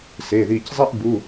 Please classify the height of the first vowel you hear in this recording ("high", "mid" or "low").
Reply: mid